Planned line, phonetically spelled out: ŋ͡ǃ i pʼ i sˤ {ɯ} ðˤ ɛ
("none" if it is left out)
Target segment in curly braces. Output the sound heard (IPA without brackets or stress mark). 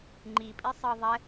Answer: ɤ